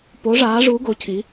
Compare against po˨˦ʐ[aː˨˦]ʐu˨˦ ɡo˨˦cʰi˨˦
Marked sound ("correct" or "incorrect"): correct